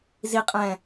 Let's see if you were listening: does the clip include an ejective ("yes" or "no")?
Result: yes